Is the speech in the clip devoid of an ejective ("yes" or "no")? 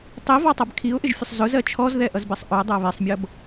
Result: yes